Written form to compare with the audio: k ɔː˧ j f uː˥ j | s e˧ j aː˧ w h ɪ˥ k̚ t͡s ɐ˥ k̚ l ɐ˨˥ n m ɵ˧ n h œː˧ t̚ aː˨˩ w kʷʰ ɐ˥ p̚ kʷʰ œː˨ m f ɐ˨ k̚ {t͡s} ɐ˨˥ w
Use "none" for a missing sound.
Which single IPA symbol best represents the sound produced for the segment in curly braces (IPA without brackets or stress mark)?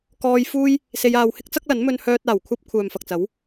t͡s